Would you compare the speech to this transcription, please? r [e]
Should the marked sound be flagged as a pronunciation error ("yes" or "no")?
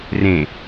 yes